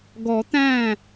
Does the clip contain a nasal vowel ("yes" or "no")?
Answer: yes